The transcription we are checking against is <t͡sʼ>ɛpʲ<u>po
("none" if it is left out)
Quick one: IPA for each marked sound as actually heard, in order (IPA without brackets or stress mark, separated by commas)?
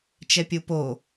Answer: t͡ʃ, u